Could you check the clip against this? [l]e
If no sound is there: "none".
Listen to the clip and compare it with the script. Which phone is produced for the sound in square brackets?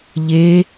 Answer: ʎ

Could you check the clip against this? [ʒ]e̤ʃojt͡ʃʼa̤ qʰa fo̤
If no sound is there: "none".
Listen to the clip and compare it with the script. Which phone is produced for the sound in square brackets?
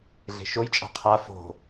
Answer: ɮ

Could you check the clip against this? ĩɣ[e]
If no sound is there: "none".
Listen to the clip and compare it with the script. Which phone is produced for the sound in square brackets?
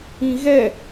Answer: ɛ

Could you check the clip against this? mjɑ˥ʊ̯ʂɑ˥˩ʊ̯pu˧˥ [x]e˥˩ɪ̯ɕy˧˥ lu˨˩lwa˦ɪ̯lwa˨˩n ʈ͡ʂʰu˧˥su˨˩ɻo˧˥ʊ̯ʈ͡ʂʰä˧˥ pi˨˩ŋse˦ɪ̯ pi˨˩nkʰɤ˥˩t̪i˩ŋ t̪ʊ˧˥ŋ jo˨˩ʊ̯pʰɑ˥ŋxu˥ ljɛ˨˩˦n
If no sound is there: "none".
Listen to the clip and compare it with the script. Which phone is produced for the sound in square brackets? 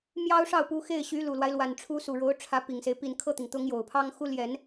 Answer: x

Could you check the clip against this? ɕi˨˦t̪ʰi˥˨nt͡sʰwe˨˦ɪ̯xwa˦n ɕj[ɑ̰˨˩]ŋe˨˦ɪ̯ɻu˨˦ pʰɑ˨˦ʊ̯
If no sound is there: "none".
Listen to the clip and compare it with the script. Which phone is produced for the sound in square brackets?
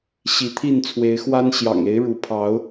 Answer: ɑ̰˨˩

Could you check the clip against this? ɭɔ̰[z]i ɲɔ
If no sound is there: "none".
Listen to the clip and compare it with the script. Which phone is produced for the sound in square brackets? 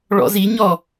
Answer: z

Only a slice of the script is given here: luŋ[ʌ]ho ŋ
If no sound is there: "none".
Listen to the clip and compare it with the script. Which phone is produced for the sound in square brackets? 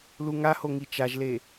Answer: a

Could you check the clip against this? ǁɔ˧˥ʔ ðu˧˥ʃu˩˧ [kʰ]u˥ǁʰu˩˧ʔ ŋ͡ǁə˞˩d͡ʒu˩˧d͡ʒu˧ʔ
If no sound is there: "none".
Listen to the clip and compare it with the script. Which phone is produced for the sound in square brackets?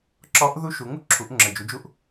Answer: ŋ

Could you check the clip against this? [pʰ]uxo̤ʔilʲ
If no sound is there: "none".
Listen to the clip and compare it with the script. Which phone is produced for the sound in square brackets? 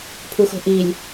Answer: pʰ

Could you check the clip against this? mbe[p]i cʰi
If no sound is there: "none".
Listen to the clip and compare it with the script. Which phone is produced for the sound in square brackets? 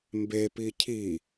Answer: p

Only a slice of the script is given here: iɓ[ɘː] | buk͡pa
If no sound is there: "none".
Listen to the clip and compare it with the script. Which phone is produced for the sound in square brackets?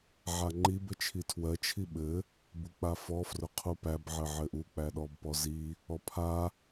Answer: ɘ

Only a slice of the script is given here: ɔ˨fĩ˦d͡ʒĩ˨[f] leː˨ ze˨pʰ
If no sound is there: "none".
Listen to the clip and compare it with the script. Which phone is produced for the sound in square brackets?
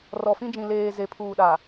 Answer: none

